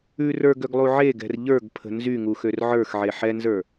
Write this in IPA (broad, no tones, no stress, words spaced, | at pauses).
ʉ rə˞ɡøɡlˠu ʕeɡɛ̤r ʎə˞ɡpʰə̤ nzyŋuxør ʕə˞xʕe ħɛnzə˞